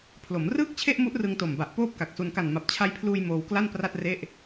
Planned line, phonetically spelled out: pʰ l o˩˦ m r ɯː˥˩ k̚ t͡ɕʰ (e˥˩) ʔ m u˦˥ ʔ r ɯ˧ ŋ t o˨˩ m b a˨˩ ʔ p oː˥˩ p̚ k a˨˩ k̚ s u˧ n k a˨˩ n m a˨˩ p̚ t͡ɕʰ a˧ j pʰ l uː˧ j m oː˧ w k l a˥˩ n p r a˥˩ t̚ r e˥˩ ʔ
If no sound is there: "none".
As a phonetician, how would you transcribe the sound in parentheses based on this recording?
e˥˩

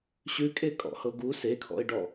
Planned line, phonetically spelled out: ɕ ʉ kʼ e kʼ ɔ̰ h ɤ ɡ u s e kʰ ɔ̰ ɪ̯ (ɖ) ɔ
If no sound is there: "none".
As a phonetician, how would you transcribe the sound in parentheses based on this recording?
ɖ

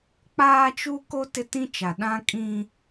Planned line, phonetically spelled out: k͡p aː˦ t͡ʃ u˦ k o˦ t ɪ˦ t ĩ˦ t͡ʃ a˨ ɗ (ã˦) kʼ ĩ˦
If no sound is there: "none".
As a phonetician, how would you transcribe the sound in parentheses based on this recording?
ã˦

